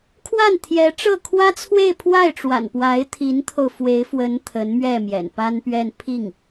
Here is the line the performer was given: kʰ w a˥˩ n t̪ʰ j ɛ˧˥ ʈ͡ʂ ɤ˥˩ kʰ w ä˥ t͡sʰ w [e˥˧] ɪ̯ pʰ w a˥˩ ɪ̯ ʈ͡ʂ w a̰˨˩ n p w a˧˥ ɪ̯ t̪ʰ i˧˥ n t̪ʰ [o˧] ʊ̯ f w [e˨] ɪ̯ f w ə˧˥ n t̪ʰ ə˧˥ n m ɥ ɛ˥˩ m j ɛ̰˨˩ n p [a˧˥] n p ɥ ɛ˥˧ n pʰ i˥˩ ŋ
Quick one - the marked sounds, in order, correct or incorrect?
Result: correct, correct, incorrect: e˧˥, incorrect: a˥

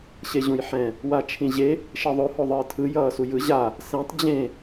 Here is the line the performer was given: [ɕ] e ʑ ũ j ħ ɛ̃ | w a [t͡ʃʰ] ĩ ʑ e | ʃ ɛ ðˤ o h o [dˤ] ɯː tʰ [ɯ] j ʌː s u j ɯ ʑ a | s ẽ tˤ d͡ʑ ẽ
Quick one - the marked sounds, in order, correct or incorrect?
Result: correct, correct, incorrect: ðˤ, correct

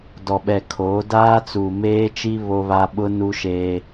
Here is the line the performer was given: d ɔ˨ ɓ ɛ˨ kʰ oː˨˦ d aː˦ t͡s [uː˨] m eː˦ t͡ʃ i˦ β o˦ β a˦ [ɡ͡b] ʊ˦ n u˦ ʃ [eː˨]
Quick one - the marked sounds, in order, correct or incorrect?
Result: correct, incorrect: ɓ, incorrect: eː˦

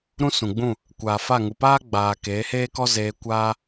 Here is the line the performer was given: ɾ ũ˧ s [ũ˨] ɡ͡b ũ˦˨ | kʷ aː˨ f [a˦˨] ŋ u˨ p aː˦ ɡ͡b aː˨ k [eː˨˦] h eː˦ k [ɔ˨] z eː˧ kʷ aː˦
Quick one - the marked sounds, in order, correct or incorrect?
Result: correct, correct, correct, incorrect: ɔ˦

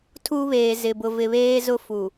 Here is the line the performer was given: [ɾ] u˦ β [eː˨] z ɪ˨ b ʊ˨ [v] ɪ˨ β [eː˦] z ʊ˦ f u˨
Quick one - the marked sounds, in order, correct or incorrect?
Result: incorrect: tʰ, correct, correct, correct

